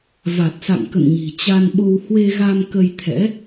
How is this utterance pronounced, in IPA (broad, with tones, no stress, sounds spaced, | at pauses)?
v a˨˩ t̚ s a̰˧˨ ŋ k ə̰˧˨ n ɲ i̤˨˩ t͡ɕ a˧ n ɓ o˧ w h w e˧ ɣ a˧ m k ə˧ j t̪ʰ ɛ̰˧˥